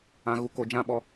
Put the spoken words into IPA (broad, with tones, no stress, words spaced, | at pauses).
ã˧ ɣu˧ko˧d͡ʒã˦ ɓɔ˧